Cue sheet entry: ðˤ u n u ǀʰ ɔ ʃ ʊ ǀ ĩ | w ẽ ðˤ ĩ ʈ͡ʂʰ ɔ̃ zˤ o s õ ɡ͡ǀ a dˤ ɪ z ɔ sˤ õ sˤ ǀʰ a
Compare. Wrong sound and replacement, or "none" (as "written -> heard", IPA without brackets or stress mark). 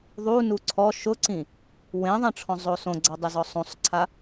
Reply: none